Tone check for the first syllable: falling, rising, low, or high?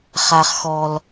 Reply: low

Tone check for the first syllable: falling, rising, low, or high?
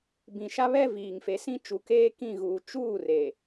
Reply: low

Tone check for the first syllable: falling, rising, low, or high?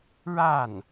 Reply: falling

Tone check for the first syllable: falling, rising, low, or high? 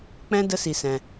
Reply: high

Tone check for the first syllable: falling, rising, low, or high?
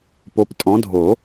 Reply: rising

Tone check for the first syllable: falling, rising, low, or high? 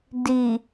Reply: low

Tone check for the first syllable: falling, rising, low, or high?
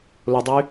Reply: low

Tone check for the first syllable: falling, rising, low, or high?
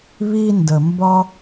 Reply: high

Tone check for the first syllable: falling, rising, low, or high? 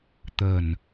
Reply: low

